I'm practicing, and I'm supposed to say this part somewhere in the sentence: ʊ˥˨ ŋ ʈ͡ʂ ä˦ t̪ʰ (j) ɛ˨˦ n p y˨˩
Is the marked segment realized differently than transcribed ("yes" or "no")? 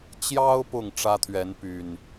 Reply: yes